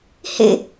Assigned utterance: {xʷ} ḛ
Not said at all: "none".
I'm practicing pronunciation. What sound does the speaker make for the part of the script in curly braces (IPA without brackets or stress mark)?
h